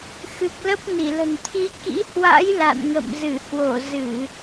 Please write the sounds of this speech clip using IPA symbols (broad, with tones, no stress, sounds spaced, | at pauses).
x ɨ˨˩ k̚ l ə˦˥ p̚ n i˧˩ l ə̤˨˩ n t̪ʰ i˨˦ k ḭ˧˥ h w a̰˧˥ j l a̰˧˨ n ŋ ə̰˧˨ m z ɨ˧˩ h w o˧˩ z ɨ˧˩˨